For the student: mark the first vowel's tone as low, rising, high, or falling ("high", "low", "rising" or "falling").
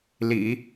low